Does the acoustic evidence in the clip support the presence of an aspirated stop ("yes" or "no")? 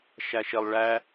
no